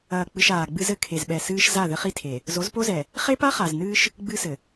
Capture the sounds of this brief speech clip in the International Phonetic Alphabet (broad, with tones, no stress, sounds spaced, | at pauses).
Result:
ɐː˨ k͡p ɨ˨ ʃ aː˨ ɡ͡b ɨ˦ z ɘ˨ kʰ e˨ z ɓ ɛ˨ s ɨː˦ ʃ z a˦˨ ð ɘ˦ χ i˦ tʰ e˨ | z o˨˦ z p o˦ z ɛ˨ | χ e˦ p a˦ χ a˨ z n ɨː˦ ʃ | ɡ͡b ɨ˦ s ɘ˨